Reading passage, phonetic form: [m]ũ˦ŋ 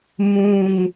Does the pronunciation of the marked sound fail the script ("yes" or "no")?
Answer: no